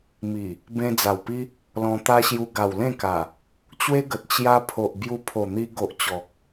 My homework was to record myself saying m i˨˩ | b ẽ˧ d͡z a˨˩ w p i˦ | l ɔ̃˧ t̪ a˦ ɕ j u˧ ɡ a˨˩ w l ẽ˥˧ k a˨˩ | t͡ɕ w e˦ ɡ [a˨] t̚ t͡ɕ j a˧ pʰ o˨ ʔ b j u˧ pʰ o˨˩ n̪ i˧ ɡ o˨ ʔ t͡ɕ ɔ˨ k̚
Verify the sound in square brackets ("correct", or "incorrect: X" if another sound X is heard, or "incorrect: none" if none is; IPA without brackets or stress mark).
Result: incorrect: ə˨